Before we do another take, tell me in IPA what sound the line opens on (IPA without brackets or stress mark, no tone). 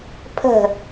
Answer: pʰ